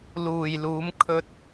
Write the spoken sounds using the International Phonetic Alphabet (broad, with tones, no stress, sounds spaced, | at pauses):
l uː˨ j l uː˨˧ m kʰ ɵ˧ t̚